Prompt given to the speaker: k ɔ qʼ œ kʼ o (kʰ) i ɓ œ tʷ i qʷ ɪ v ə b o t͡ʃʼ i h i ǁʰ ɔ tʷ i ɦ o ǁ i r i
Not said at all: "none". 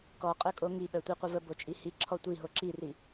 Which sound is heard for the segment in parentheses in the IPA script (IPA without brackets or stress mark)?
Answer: ŋ